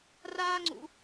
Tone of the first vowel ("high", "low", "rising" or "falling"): high